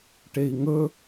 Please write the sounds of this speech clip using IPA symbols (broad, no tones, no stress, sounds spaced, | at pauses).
ʈ e i̯ ŋ ɵ